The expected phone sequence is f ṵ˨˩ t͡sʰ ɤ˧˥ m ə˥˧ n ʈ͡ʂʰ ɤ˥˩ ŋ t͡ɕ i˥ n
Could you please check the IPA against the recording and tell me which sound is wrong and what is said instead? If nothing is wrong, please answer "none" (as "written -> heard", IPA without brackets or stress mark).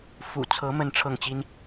none